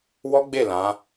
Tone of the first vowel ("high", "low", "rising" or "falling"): high